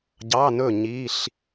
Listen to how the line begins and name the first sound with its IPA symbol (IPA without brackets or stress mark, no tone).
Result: ɟ